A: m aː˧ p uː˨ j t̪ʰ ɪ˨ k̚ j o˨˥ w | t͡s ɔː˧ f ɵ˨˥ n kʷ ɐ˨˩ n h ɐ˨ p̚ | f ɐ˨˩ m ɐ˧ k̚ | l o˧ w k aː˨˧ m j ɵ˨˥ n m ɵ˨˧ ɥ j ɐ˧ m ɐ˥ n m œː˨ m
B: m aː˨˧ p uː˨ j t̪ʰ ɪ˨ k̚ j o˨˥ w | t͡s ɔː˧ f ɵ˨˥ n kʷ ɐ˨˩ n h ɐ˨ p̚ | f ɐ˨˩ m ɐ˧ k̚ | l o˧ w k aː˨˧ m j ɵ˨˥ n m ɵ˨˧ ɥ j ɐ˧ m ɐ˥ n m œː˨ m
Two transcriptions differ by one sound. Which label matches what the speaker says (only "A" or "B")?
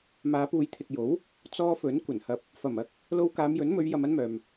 B